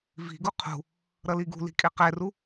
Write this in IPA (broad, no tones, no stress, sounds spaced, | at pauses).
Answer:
v i̤ ɡ u qʰ ṳ | ɾ ʌ l i ɡ ṳ l i̤ kʼ e q ɛ r u